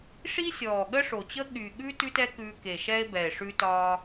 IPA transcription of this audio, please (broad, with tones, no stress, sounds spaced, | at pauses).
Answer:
ʂ i˥ sʲ ɔː˨˩ ɠ ə˥ ʂ o˨˩ t͡ɕ ə˥ ɠ y˨˩ ɠ ʉ˥ t ʉ˥ t ɛ˥ k ʉː˧ k e˨˩ ʃ ɛ˥ e̯ b ɛ˨˩ e̯ ʂ ʉ˧ t ɒː˧